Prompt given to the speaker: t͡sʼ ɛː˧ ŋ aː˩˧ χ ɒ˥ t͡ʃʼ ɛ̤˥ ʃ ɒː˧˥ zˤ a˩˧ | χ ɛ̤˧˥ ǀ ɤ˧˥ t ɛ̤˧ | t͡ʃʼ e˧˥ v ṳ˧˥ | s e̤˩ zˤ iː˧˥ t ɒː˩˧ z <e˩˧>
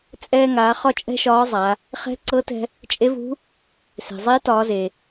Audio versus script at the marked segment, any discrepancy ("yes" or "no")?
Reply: yes